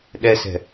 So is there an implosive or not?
yes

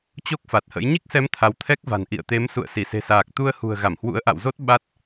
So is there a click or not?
no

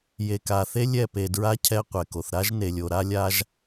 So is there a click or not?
no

